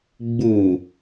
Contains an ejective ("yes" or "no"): no